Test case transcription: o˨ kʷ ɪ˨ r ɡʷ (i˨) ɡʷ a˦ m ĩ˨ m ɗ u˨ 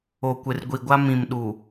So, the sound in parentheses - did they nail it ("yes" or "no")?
yes